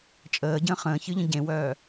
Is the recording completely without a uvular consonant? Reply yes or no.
no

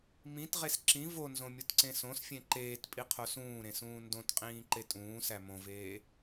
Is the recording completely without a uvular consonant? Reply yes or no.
no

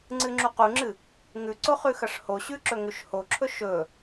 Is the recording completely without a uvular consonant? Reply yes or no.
no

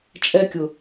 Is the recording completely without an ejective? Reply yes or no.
no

